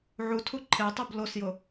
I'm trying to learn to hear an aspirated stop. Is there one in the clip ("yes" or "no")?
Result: yes